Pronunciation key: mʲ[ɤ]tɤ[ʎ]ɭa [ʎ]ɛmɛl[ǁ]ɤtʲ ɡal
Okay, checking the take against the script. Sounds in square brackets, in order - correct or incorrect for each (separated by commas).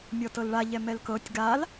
incorrect, incorrect, correct, incorrect